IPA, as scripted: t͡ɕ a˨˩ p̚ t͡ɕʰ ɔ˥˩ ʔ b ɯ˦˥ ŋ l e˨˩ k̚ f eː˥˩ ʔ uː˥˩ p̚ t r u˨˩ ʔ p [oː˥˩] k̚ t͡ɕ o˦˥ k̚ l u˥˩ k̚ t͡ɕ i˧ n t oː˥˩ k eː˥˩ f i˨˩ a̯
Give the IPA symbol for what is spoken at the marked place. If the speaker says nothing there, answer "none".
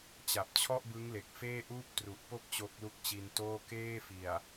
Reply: o˥˩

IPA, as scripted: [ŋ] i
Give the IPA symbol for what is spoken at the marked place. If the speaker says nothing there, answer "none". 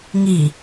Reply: ŋ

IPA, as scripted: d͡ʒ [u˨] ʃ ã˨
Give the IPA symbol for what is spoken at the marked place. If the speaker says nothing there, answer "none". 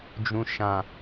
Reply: ũ˨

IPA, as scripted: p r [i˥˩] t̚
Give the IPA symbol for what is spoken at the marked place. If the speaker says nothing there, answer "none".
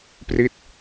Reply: i˥˩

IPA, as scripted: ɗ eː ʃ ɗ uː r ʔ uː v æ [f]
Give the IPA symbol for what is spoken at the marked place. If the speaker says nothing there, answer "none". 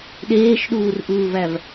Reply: v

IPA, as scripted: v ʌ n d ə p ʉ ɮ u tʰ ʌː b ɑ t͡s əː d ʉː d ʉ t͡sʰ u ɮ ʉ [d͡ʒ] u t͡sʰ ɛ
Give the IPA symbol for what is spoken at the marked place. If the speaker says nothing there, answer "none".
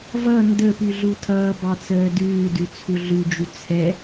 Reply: d͡ʒ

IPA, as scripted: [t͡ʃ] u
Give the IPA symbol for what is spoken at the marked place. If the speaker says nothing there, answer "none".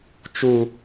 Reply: t͡ʃ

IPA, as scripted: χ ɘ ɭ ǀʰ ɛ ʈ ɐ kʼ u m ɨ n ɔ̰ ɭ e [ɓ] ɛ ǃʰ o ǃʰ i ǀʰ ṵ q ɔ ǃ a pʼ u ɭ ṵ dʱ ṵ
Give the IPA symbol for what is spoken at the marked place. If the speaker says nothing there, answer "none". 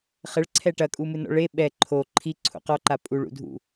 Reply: ɓ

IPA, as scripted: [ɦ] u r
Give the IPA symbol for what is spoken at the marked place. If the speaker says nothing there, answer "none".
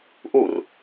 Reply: ʔ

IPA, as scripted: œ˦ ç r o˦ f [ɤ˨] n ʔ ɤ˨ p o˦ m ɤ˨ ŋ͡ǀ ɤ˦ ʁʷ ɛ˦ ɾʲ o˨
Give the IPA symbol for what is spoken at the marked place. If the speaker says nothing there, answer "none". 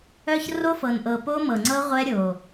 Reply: ɤ˨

